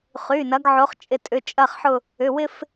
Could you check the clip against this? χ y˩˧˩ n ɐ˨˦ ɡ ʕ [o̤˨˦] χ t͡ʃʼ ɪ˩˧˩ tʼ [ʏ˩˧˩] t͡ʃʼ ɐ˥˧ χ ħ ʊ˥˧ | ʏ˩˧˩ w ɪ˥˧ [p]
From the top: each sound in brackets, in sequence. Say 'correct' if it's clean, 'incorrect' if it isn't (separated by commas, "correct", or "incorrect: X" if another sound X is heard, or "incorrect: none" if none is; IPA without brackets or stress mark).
incorrect: o˨˦, correct, incorrect: f